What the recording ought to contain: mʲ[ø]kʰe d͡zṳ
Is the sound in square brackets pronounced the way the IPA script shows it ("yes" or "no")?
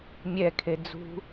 no